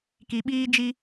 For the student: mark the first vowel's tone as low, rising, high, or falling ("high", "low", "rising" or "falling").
low